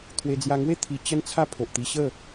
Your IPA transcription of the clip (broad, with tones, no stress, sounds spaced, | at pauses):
t̪ʰ w e˧ d͡z j a˧ ŋ w e˥˧ t̪ʰ i˧ t͡ɕ ə˦ n t͡sʰ a˦ pʰ o˨ ʔ t̪ i˧ ɕ ə˥˧